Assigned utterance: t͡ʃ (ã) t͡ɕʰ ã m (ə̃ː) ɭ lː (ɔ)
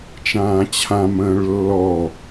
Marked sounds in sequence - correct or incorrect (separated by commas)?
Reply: incorrect, correct, correct